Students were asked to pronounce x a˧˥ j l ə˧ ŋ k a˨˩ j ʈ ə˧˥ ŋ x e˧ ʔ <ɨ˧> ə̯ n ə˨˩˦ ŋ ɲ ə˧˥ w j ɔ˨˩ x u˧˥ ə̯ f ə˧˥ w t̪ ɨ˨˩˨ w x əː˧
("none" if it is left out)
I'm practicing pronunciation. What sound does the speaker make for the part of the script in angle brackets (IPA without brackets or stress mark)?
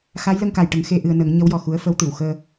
ɨ˧